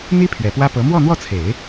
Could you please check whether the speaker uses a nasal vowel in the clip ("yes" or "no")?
no